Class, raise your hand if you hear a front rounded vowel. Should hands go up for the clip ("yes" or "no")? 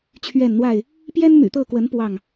yes